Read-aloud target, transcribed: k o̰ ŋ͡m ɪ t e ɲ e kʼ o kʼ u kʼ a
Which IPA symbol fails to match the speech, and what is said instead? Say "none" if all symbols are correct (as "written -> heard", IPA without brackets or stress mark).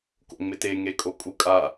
ɲ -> ŋ